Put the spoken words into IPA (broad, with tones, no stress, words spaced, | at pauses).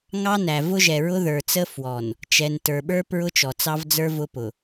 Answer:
ŋɑ˦næ˨ vʊ˦ʒɛ˨ ɹʊ˦ðə˞˨t͡sə˦ fwɔ˨n | t͡ʃɛ˨ntə˞˨ɓə˞˦ pɹʊ˦t͡ʃɔ˨t͡sɑ˦vd͡zə˞˦ vʊ˦pʊ˨